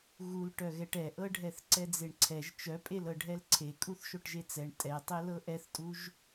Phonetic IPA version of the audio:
ɣ u l ʈ œ ɣ ɛ ʈ ɛ ʔ ɤ ɖʱ ɛ θ ǀ ɛ d͡z e ɳ ǀʰ ɛ ʒ t͡ʃ œ pʼ e l ɤ ɖʱ ɛ l ǀʰ e kʼ u θ ʃ o ʈ ʒ e t͡s ɛ ɳ tʼ ɛ tˤ e l ɤ ʔ ɛ θ tʼ u ʒ

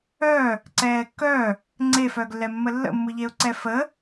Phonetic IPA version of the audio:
œ | ǀ ɛː kː œ | ŋ͡ǀ e f œː ɡ lː ɛ mː ə lː ə̰ mː ɯ ʎ e ʊ̯ ǀ ɛ f ə

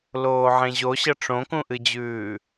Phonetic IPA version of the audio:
l oː ʕ ẽ ʑ o ɕ ɐ ʈ͡ʂ õ k ũ ʔ ɨ d͡ʑ ʉː

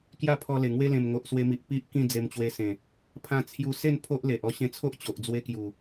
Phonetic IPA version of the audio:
k j a˥˧ pʰ ɔ˧ l e˨˩ ŋ w e˦ l ẽ˨˩ m ŋ o˨ ʔ s w e˧ m i˨ ʔ p i˦ ʔ k ĩ˥˧ d͡z e˧ m t͡ɕ w e˧ s ẽ˨˩ | pʰ ã˧ t͡sʰ j u˧ s e˥˧ n pʰ o˦ ʔ l e˨ ʔ ɔ˧ ɕ ẽ˧ t͡sʰ o˦ ʔ t͡ɕ o˨ ʔ d͡z w e˦ k j u˨˩

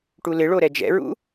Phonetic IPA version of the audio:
ʈ u l ɪ ɭ o ɾ ɛ d͡ʒ ɛ̰ ɹ ṵ

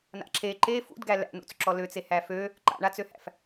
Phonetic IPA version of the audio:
n a̰ ǁ e ǃ e f ṵ d ɡ æ l æ̰ n ṵ t͡s ǁ ɔ l ø t͡s e h æ f ø | ǃ a̰ ɳ a t͡s ø h æ̰ f

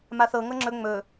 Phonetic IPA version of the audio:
m a θ ɤ ŋ ɤ ŋ͡ǁ ɵ ŋ͡m ɵ

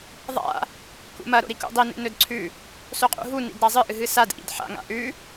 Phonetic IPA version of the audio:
ðˤ a̰ | k ṵ m ɐ ɾ o̰ ɾ i k ṵ dˤ i n ḛ n ɵ d ǀʰ ʉ | s o qʼ ṵ ɦ u n ḭ d ɾ a zˤ ɨ ʔ ɨ ɦ ɨ s a d ʔ ḭ d ħ a̰ ŋ a̰ ʔ ʉ

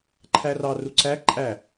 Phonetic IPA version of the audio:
ǃʰ æ r ɑ r u ǀ æ ǃʼ æ

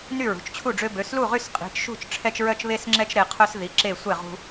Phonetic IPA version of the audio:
n y˥˩ ɹ ṳ˩˧˩ t͡ʃ t͡ɕʰ u˥˩ ɖ͡ʐ ø˦ b ø˩˧˩ s l u˥˩ ʁ y˥˩ s qʼ i̤˩˧˩ t͡ʃ ʃ ṳ˥˩ t͡ʃ ʈ͡ʂʰ ɛ˦ t͡ʃ ɹ œ˦ t͡ʃ β e˦ s ŋ͡ǁ ɛ˦ t͡ʃ ɾ e˩˧˩ qʰ œ˦ s ð i˩˧˩ ǁ e˥˩ sʷ ɛ˥˩ ʁ ṳ˦

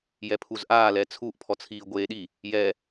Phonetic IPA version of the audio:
j ɛ pʰ u z ʔ aː l ɛ t͡sʰ u ʔ pʰ ɔ t͡sʰ iː ɡʷ eː ɗ i | j ɛ

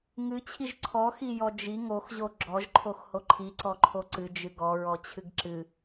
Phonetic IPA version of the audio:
ŋ ɨ t͡ɕʰ i ʒ ǀʰ ɔ x i j ɔ d͡ʒ i ŋ o x ʑ o ɡ͡ǁ ɔ ʒ ǃʰ o x h o ǃʰ i ǀ ɔ ǃʰ o ǀ ɨ d͡ʒ ɨ ɡ ɔ ɹ ɔ t͡ɕʰ ɨ ɡ ǁ ɨ

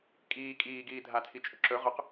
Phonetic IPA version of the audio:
kʼ iː kʼ iː ɡ iː dʱ a tʰ i t͡ʃʼ ɵ ǁ ɵ ʁ ɵ q

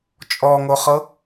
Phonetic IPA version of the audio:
t͡ʃʼ ɔ ŋ o χ ɤ

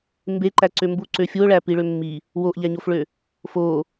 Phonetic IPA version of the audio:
m b e ǃ æ ǀ ø m b u ǀ ø fʲ u o̯ ɭ æ p i ɭ ø mː i | w o ʔ ʎ æ ɲ o f ɭ ø | f o

